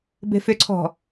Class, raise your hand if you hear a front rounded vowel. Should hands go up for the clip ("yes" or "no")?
yes